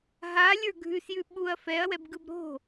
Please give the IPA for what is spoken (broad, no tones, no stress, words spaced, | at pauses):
ɦalʲə˞ ɡʱʉsjʉ ɓuɐ̯ fɛɐ̯wɛbɡɯb ɾo̤